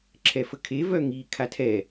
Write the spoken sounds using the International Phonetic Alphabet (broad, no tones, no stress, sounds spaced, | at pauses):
ǁʰ ɛ f ə kʰ e v œ ŋ i kʰ a tʰ ɛ